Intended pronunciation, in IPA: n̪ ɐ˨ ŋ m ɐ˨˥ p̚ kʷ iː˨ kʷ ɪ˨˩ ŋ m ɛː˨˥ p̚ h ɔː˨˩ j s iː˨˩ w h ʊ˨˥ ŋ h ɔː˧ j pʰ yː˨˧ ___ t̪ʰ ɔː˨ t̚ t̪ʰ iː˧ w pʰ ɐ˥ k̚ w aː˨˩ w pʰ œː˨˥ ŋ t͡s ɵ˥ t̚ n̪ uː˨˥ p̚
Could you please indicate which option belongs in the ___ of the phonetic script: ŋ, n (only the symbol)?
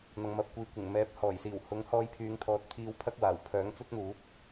ŋ